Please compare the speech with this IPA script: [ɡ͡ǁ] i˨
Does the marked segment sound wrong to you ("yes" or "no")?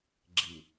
no